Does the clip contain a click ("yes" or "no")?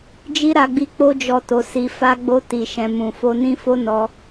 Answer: no